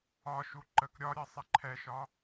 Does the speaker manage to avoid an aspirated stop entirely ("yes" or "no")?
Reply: no